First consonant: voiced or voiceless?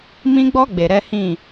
voiced